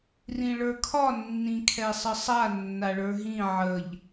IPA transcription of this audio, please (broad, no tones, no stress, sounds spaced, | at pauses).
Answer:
r ĩ ɭ ə˞ kʰ ɒ nː ĩ kʰ ɛ sˤ ə sˤ a nː a ɭ ə˞ ɦ ĩ ʕ ə ʎ